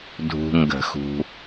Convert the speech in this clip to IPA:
dʱ ṳ˨ ŋ ɡ ə̤˨˩˦ x ṳ˨

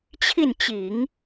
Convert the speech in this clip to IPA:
t͡ɕʰ i˥˩ n t͡ɕ i˨˩˦ ŋ

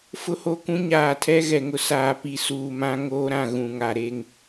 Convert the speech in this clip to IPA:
f ʊ˦ h o˦ k ũ˦ ɲ aː˨ tʰ ɛ˦ ɣ ɛ˨ ŋ ʊ˦ s aː˨ p i˨ s uː˨ m ã˦ ŋ oː˦ ɾ ã˨ ɣ ũ˨ ŋ a˨ ɾ e˦ ŋ

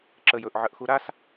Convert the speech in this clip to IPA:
ǁ ə j ɵ ʔ ʕ ə ʔ x u ɾ a s

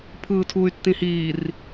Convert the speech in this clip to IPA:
pʰ ɯː tʰ uː y̯ tː ĩ h iː r

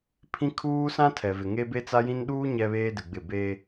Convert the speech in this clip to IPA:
pʰ ĩ˦ kʰ uː˦ s ã˦ tʰ ɛ˨ v ɪ˨ ŋ e˦ b e˦ t͡s a˦ j ĩ˦ n ɗ uː˦ ɲ ɛ˦ β eː˦ d ɪ˨ ɡ͡b ɪ˦˨ b e˦

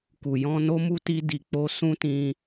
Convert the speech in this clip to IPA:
k u˨ j ɔ̃˧ n o˦ m u˦ t i˧ d i˨ k͡p o˧ s ũ˦ t ĩ˧

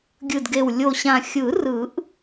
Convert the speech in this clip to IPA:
ɡʲ ɯ˨˩ d ɡ e˨˩ w lʲ o˨˩ ɕ ã˨˩ xʲ ɯ˨˩˦ r ɯ˨˩˦ ʔ

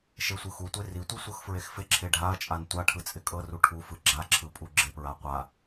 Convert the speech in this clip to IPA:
ʃ e sʷ ɯ x u tʷ e r i tʷ i sʷ ɤ x f ɹ e x f ɪ ǁʰ e ɖʱ a ɐ̯ t͡ʃʼ a n tʷ a ʈʰ ɯ t͡sʼ ɪ kʼ ɤ r u ʈʰ u f ɯ ɡ͡ǁ a ǁʰ ɯ pʼ u ɡ͡ǁ ɪ p ɹ a qʷ a

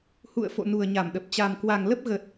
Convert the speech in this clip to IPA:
h ṵ˧˨ ə̯ f o̰˧˨ n u˨˩ ə̯ ɲ a˧˩ m ɗ ə˨˩ p̚ t͡ɕ a˨˩ m k w a˨˩ ŋ l ə˦˥ p̚ ɣ ə˨˩ t̚

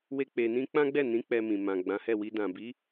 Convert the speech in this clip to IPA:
w e˦ k͡p e˧ n ĩ˦ k͡p ã˦ ɡ͡b ɛ˦˨ n ĩ˨˦ k͡p ɛ˧ m ĩ˨ m ã˨ ɡ͡b ã˨˦ h ɛ˦˨ w i˧ d ã˨ b i˨˦

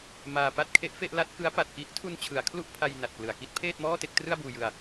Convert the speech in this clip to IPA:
m aː˧ p a˥˩ t̚ kʰ e˦˥ ʔ f e˥˩ ʔ l a˥˩ t̚ k ɯ˦˥ a̯ p a˨˩ t̚ k i˦˥ ʔ tʰ u˧ n t͡ɕʰ ɯ˩˦ a̯ kʰ l u˥˩ ʔ pʰ a˧ j n a˨˩ t̚ k l ɯ˨˩ a̯ k i˥˩ t̚ pʰ eː˥˩ t̚ m ɔː˥˩ t e˥˩ k̚ t r ɯ˥˩ a̯ b uː˧ j ɯ˧ a̯

